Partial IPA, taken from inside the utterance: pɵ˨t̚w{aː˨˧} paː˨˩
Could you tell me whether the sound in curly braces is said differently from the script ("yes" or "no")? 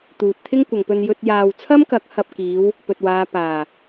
no